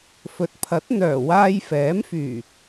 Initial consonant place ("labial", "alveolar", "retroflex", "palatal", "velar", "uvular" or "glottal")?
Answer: labial